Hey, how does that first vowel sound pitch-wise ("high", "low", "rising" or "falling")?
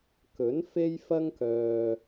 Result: rising